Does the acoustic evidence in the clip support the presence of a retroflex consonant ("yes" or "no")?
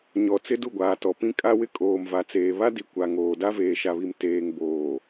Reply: no